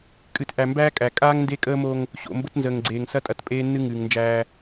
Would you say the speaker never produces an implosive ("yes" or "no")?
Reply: yes